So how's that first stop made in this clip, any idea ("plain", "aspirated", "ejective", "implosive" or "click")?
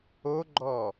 click